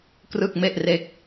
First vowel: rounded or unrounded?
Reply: unrounded